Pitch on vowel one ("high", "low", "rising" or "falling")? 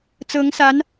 rising